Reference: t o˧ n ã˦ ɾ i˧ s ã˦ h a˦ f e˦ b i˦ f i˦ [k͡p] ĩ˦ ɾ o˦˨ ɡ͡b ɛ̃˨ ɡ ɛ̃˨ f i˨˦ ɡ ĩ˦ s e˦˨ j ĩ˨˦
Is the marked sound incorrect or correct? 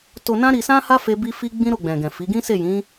incorrect